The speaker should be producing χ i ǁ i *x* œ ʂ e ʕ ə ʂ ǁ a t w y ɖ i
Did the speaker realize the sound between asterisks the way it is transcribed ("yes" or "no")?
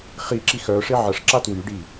yes